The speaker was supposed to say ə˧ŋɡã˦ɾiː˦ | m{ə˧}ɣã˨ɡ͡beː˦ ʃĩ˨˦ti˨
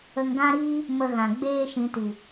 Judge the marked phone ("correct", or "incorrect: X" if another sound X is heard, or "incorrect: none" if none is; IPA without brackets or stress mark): correct